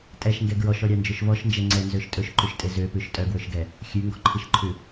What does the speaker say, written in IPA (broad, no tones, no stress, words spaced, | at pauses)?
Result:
tʼɛʃŋɡɛ ɡɹɔʃɔɾʲɑnd͡ʒɵʃ vɔʃnd͡ʒɛ ŋ͡ǀɛnzøʃ tʼɵʃǃʉʃtʼe zøpʉʃ tʼœɡwɵʃɡɛ | xʲʉŋɡɔǃʰiʃǃʰʉ